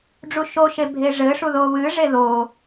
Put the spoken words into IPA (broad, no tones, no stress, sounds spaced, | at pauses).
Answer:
ɖ͡ʐ u ʃ o ʃ e bʱ e ʐ ɘ ʂ u ð o β ɨ ʐ e ð o